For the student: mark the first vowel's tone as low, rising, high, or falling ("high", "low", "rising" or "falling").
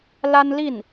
high